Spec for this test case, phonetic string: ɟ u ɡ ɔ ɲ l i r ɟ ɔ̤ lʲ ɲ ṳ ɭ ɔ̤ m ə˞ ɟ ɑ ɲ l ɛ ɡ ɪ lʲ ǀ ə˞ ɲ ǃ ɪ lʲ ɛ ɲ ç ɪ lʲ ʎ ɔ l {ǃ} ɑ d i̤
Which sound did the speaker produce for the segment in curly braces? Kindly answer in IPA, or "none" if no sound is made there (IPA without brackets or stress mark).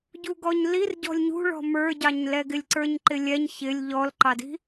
ǃ